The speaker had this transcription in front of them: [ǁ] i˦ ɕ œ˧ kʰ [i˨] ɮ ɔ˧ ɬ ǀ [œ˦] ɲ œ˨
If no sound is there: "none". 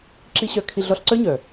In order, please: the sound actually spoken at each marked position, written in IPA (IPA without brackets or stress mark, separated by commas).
ǁ, i˧, œ˦